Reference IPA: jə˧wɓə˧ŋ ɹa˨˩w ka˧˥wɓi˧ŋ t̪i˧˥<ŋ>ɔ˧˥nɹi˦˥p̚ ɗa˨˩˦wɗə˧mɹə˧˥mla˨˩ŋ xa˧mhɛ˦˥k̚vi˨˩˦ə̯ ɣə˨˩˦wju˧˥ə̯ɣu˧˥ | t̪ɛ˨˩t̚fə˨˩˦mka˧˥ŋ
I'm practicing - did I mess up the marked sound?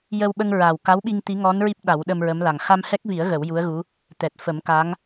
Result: no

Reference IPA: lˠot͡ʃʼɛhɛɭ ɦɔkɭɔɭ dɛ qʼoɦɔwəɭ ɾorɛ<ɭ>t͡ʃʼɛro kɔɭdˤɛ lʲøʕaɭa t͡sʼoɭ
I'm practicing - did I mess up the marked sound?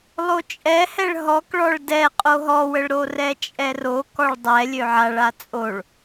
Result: yes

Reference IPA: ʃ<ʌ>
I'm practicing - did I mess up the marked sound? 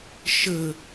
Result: yes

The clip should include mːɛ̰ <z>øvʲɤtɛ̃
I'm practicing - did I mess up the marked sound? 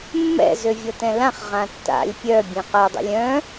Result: no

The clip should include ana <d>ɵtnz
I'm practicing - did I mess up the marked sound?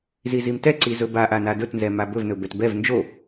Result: no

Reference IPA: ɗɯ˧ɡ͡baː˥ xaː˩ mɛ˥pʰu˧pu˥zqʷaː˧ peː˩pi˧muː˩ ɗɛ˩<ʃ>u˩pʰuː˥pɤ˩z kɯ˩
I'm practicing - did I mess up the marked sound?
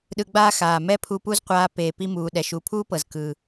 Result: no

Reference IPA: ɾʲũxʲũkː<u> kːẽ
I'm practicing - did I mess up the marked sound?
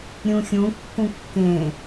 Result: yes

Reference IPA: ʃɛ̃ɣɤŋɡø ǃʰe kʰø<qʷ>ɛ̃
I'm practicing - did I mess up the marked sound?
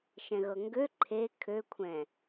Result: yes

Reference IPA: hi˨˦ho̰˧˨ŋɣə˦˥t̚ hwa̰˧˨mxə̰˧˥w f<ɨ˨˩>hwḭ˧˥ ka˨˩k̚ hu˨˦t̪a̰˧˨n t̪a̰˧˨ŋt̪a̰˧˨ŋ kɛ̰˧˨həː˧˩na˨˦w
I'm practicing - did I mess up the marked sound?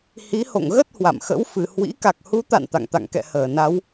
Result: no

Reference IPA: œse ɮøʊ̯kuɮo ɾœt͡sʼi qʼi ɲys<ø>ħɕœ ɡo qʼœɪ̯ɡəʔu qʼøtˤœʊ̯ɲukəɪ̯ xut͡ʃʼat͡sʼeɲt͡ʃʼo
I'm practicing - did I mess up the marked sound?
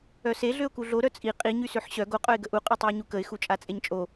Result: no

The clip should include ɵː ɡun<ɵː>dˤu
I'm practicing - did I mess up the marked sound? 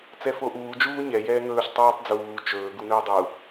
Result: no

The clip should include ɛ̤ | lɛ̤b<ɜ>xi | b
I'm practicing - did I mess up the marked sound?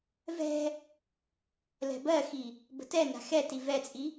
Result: no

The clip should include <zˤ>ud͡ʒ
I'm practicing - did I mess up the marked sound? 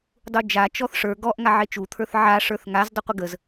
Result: yes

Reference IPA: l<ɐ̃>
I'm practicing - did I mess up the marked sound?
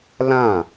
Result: yes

